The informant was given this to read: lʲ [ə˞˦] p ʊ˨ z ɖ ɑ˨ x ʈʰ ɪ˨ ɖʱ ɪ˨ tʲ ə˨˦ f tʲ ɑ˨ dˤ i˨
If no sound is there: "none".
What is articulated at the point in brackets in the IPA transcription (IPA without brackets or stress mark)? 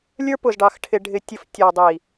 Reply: ə˞˦